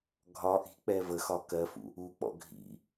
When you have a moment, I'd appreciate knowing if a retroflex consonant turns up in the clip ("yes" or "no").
no